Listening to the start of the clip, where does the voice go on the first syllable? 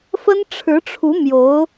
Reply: high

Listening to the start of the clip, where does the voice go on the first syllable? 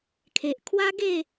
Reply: low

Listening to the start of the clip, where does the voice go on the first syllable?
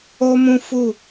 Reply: high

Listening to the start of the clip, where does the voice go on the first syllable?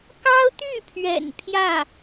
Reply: high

